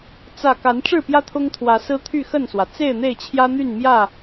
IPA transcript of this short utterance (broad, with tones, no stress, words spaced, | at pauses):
t͡sä˥˨ ka˨˦nʈ͡ʂɻ̩˥˨pjä˦ t̪ʰʊ˦ŋt̪ʰwä˨˦ sɹ̩˦t̪ʰy˥˨xə˥˨nswä˩ t͡se˥˨ɪ̯n̪e˥˨ɪ̯t͡ɕʰjä˦n̪y˥˨n mjä˥˨